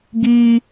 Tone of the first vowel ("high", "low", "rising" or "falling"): high